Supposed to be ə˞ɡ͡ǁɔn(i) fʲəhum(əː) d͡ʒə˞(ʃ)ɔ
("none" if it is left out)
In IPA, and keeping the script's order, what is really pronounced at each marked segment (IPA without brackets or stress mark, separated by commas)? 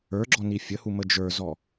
i, ə, z